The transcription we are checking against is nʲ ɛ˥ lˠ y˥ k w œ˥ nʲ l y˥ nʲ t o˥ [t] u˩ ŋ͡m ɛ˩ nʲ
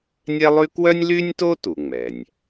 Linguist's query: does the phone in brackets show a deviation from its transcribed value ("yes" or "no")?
no